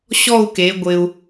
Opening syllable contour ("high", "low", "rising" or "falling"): falling